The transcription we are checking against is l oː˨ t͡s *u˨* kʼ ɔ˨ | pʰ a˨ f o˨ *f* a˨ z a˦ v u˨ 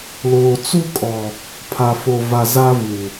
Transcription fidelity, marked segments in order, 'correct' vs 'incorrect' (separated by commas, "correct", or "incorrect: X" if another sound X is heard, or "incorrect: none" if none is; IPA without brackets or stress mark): incorrect: u˦, incorrect: v